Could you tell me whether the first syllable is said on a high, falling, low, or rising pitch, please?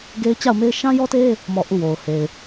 high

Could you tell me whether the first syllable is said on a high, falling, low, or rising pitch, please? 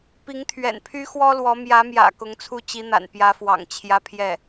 rising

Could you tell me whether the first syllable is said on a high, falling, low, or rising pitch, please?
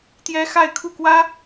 high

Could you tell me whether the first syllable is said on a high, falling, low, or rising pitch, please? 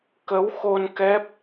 rising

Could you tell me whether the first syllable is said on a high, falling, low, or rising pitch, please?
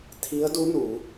rising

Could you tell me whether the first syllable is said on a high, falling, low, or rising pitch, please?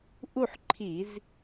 falling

